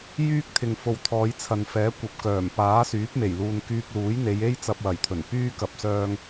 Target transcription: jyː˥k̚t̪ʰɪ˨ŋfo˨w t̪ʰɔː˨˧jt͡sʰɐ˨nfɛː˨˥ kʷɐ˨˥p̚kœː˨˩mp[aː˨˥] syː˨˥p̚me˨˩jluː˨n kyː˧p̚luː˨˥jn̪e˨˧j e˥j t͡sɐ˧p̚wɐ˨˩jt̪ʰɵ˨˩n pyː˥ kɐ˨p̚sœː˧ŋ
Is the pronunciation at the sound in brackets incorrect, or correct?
correct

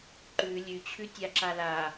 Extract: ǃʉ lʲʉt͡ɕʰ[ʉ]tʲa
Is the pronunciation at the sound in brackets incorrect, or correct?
correct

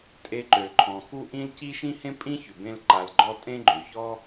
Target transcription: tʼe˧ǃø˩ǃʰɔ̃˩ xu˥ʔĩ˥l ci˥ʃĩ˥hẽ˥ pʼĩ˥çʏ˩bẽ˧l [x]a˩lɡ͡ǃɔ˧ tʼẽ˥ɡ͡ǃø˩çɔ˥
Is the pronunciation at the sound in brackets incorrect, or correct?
incorrect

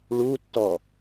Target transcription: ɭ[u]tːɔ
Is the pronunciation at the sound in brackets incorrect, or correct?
correct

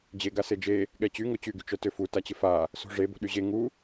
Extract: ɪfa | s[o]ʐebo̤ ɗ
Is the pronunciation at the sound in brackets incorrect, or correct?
incorrect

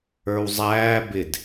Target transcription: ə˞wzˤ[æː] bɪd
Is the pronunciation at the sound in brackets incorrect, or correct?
correct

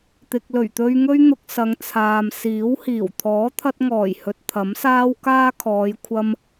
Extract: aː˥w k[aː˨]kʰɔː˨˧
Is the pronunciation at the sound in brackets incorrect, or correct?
incorrect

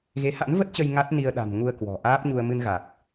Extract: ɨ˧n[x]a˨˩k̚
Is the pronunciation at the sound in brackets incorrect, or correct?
incorrect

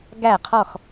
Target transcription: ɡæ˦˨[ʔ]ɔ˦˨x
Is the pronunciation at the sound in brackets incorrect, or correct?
incorrect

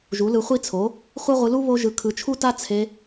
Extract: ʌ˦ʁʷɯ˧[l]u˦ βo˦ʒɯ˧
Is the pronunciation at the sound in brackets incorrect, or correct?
correct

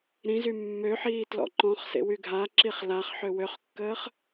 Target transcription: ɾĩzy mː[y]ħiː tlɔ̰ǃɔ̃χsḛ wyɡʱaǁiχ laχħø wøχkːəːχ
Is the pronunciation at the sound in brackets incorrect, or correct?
incorrect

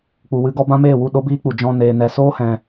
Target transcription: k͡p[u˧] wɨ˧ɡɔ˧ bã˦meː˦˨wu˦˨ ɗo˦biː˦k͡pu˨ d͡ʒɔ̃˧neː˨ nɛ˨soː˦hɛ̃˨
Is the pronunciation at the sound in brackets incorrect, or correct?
incorrect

